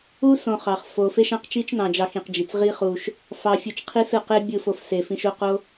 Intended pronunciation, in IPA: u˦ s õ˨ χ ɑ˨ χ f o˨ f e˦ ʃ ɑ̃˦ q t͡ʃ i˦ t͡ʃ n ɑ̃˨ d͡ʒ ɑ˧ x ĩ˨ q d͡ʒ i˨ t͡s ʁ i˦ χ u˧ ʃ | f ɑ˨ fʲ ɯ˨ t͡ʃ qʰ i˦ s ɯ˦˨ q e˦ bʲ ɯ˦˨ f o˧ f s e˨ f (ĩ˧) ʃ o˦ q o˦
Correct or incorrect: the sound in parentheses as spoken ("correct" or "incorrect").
correct